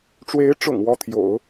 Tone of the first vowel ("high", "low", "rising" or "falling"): rising